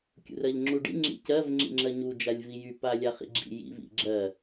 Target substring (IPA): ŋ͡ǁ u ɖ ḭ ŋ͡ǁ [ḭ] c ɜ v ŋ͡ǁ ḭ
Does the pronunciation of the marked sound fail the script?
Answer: no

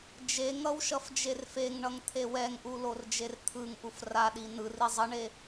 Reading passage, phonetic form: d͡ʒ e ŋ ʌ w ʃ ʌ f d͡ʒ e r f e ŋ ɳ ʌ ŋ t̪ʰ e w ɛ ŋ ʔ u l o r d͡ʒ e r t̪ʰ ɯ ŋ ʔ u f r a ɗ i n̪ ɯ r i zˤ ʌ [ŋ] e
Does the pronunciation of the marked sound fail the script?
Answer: yes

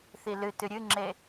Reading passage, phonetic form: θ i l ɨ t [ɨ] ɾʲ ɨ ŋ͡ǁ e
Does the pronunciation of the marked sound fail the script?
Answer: no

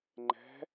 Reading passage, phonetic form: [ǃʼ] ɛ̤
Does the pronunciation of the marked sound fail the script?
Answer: yes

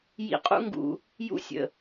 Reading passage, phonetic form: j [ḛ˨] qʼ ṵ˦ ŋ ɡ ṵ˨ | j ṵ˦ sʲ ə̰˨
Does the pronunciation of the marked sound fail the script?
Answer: yes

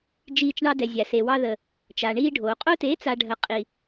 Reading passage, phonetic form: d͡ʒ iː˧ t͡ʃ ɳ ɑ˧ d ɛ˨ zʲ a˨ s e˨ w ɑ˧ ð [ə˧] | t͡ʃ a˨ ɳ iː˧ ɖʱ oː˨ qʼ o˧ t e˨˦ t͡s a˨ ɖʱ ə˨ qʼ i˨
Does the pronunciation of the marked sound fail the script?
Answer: yes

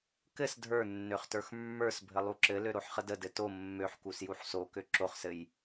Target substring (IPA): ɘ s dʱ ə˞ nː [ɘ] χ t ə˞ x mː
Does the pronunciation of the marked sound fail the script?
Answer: yes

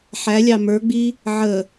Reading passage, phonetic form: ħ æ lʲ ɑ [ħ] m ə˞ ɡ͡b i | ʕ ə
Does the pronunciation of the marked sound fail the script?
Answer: yes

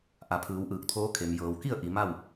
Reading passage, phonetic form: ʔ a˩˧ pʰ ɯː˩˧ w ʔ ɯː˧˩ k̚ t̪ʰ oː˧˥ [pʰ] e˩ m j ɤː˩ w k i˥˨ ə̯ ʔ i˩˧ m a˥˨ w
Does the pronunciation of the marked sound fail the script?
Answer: yes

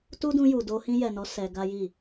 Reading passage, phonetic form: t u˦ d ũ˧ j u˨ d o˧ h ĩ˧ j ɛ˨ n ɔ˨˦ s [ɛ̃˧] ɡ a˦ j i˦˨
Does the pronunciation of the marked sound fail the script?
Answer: yes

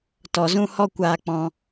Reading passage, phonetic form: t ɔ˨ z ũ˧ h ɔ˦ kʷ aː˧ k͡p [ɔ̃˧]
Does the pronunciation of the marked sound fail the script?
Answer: no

